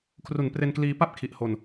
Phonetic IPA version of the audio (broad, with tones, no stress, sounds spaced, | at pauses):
kʰ r u˩˦ n p r e˧ n k l iː˧ p a˥˩ p̚ kʰ i˨˩ ʔ h o˧ n